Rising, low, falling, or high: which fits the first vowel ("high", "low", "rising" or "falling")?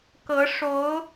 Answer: rising